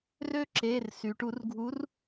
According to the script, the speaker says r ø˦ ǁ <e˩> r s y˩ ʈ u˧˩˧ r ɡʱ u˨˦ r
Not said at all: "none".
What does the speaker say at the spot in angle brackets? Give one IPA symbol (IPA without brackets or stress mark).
e˩˧˩